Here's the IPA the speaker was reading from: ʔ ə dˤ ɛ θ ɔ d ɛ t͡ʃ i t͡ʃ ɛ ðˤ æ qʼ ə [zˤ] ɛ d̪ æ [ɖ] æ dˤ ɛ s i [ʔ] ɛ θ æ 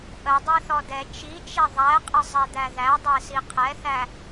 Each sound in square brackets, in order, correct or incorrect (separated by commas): correct, incorrect, incorrect